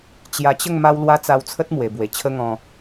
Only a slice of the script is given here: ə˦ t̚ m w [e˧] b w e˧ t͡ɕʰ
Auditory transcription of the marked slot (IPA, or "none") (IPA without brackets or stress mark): e˧